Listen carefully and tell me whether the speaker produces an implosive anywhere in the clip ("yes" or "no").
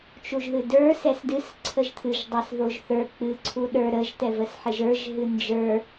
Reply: yes